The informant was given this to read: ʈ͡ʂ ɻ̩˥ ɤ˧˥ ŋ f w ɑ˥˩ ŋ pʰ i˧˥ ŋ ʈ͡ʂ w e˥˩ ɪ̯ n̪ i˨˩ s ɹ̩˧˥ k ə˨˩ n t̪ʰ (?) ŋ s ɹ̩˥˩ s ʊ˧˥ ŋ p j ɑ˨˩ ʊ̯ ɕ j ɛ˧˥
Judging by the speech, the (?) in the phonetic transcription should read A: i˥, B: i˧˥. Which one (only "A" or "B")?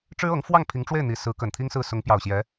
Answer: A